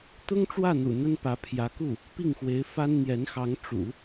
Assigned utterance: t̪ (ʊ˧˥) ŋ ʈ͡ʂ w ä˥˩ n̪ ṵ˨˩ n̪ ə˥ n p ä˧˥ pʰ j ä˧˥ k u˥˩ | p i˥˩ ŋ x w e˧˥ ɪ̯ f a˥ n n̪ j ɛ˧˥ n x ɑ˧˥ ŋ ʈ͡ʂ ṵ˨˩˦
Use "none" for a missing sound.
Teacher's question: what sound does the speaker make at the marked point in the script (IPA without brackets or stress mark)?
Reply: ʊ˥